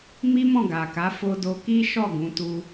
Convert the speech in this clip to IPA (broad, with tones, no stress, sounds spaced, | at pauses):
m i˦ m ɔ̃˦˨ ɡ a˨ k a˨˦ f o˧ d o˧ k i˦ ʃ ɔ˦˨ ɡ ũ˨˦ t u˧